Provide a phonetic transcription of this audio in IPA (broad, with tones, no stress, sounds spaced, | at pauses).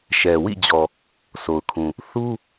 ʃ ɛ˨ w ḭ˦˨ d͡ʑ ɔ˨ | sʰ o˨ ʊ̯ kʰ ũ˨ | θ u˦